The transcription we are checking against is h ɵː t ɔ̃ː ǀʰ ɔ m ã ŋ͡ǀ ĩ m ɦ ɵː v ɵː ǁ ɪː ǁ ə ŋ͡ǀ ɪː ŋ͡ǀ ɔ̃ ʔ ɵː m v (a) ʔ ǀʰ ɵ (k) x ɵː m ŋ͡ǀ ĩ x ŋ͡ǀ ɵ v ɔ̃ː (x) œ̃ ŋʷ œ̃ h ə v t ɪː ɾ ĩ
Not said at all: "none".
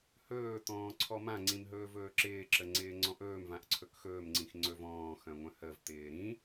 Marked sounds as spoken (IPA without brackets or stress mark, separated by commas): ã, k, x